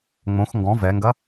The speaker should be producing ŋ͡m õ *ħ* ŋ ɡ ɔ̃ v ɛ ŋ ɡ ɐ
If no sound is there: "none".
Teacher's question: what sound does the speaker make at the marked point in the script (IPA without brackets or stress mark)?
x